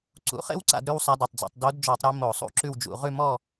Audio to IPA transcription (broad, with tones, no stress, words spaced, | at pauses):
ǀṵ˩˥χḛ˥wǀa̰˧˩˧d ɾʉ˥wsˤa˧˥de˩˧˩tˤd͡zḛ˧˩˧tˤ do˧˥dd͡ʒɔ˧˩˧tˤ ɾe˧˥ mo˧˩˧sˤṵ˧˥ǁʉ˥˨wd͡ʒṵ˧˩˧ ʁʉ˥˨mɔ˥˨